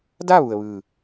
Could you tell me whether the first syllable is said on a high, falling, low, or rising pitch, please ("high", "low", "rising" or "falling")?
falling